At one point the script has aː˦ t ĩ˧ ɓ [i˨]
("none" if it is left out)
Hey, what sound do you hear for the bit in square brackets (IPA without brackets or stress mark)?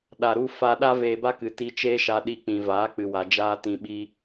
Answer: i˦